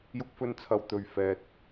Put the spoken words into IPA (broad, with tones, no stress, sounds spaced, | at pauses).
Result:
j ʊ˥ k̚ f ɵ˥ n t͡sʰ ɐ˧ w t̪ ɵ˨ ɥ f ɛː˨ t̚